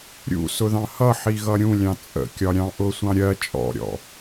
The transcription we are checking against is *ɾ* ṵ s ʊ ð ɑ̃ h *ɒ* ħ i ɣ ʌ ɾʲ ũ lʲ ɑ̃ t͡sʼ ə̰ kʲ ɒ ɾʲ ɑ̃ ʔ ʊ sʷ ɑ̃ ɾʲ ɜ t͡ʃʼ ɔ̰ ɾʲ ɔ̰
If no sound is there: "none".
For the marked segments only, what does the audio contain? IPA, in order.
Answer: ɾʲ, ʌ

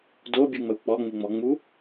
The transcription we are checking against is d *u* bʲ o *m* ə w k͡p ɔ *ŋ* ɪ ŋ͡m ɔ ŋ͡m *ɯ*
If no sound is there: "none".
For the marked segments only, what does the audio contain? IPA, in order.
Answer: o, ŋ͡m, ŋ͡m, u

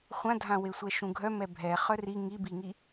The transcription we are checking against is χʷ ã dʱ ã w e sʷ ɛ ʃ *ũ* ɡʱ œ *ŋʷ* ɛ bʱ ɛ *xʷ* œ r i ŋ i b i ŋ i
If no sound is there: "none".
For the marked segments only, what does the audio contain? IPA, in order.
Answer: ũ, m, χ

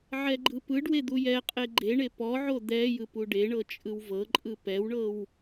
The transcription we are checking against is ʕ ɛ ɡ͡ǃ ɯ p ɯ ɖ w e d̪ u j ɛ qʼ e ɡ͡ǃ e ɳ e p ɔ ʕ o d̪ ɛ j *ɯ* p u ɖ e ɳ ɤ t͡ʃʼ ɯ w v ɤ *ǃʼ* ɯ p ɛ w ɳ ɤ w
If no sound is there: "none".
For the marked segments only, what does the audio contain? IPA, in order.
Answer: ɯ, ǃʼ

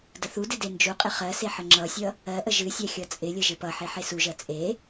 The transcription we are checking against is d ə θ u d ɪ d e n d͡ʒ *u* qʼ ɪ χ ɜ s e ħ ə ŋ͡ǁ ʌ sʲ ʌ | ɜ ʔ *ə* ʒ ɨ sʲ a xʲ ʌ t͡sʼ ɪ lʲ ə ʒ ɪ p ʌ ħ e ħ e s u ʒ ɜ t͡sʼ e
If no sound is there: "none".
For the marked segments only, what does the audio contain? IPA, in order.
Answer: u, ə

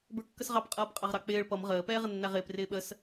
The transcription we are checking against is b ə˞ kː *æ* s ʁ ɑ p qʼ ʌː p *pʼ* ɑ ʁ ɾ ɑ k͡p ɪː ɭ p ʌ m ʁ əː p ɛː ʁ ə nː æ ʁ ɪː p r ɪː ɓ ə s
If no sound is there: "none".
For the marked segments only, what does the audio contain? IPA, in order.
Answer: ə, qʼ

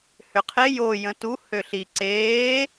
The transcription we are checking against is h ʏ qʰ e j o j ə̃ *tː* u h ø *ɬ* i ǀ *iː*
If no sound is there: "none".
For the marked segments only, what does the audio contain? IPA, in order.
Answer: t, ɬ, eː

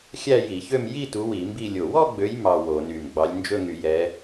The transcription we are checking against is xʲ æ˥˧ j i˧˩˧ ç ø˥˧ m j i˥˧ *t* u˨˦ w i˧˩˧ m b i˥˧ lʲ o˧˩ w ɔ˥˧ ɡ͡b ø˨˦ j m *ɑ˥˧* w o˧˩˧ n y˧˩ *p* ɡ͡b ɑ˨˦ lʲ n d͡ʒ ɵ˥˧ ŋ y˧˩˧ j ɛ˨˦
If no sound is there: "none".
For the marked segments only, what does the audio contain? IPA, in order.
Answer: t, ɑ˥˧, m

